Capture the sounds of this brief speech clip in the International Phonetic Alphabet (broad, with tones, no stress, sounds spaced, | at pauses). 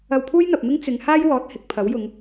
ɐ˧ w pʰ uː˥ j n̪ ɐ˨ p̚ m ɪ˥ ŋ t͡s ɪ˨˧ ŋ h aː˥ j w ɔː˨˥ t̚ h ɪ˨ k̚ pʰ ɐ˨˥ w j ʊ˨˧ ŋ